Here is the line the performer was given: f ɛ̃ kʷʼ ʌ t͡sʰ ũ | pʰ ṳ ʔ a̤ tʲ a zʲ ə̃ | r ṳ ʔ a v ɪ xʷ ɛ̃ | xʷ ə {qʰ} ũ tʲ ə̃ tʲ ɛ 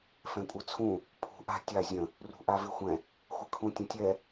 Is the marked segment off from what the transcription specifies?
yes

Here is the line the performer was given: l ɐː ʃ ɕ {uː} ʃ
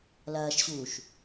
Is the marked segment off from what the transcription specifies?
no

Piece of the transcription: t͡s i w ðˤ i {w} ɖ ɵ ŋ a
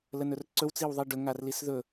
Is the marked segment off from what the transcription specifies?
yes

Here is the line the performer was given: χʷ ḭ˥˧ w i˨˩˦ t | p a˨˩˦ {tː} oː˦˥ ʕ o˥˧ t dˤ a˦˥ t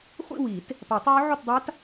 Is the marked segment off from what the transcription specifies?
yes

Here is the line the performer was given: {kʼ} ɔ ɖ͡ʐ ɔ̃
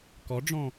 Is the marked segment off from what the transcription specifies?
yes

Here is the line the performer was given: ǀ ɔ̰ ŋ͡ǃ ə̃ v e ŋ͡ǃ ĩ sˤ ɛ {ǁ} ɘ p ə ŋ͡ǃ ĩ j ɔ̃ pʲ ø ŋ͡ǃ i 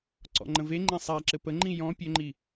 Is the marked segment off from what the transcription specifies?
no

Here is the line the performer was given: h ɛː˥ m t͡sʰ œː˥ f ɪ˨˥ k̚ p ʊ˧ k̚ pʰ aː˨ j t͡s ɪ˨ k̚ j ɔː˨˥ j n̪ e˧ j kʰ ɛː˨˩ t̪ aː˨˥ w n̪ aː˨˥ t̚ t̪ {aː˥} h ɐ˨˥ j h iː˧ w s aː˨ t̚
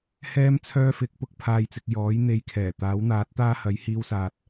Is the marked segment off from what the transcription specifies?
no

